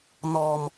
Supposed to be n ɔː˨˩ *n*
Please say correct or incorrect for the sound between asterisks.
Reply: incorrect: m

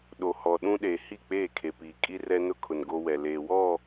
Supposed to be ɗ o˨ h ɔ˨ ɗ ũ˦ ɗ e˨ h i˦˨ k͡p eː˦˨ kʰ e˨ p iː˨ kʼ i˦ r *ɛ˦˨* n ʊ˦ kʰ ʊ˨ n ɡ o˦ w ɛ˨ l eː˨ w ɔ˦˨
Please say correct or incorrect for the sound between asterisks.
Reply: incorrect: ɛ˦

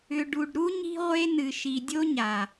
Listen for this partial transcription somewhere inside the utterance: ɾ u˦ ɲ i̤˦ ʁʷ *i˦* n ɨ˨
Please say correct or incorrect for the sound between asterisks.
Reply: incorrect: e˦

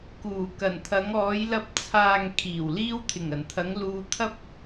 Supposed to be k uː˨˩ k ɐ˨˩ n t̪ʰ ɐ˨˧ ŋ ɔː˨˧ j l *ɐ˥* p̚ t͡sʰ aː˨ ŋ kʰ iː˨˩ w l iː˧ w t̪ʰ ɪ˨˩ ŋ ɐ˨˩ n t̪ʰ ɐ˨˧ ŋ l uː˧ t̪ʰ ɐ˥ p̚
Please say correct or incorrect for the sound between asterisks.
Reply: incorrect: ɐ˨˥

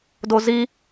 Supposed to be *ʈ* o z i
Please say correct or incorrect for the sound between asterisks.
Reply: incorrect: d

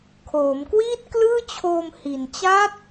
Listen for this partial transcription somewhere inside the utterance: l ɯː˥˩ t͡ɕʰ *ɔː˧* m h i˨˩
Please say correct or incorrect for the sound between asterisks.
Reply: incorrect: oː˧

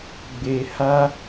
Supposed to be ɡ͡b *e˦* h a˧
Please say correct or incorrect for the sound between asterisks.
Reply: incorrect: e˨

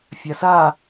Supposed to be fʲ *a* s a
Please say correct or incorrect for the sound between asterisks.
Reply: correct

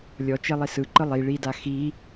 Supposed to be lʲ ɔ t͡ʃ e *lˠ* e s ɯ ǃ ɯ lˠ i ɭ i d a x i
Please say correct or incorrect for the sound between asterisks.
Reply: correct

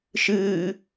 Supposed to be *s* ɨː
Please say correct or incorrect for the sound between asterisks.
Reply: incorrect: ʃ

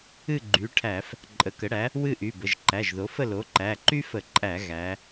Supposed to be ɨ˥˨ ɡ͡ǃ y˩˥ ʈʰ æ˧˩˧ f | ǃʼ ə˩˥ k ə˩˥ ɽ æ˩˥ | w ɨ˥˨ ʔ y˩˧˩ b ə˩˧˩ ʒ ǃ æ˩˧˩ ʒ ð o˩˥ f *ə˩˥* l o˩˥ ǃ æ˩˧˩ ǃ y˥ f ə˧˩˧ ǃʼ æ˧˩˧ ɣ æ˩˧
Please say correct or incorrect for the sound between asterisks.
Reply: incorrect: ə˥˨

